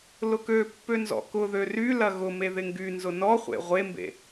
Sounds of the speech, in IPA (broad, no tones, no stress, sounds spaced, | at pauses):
l ʊ k ø pː ø n z ɔ̰ k ʊ ð ø r y l ɐ ɣ ʊ m e ð ɪ ŋ ɡ y n z ʊ n ɔ χʷ ḛ ʁʷ e m b ḛ